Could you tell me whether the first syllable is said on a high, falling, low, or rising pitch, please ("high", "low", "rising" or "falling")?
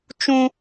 high